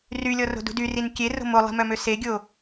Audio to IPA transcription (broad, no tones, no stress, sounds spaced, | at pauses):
r y lʲ ɔ r o̤ d ṳ d y r i n kʲ e r o̤ m o lˠ i̤ m œ m ø s e ɡʲ o